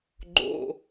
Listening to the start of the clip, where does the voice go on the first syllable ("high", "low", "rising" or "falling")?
low